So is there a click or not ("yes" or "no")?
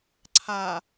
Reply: yes